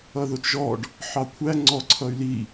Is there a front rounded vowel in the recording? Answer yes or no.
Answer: yes